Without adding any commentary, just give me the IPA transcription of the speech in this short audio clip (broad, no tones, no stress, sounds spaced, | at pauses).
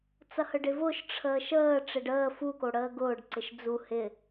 t͡s ɐ h ə ɖ ɪ v ʊː ʃ ʈ͡ʂʰ əː ʃ əː ʈ͡ʂ ɪ ɖ əː f u k o ɽ əː ɡ ʊː ɖ ǀ ɪ ʃ d͡z u h ɪ